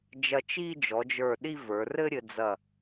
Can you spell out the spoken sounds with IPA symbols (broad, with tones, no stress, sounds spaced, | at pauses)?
d͡ʒ ɐ˧ t͡ʃ i˥˧ d͡ʒ ɔ˩˧ d͡ʒ ə˞˧˩ ɗ i˥˧ v ə˞˩˧ r ɘ˥ ɾʲ ɘ˧ d͡z ɐ˧˩